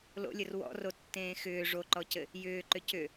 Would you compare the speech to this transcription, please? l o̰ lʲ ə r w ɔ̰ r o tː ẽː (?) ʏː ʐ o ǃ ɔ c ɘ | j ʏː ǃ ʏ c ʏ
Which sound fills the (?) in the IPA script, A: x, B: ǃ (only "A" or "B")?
A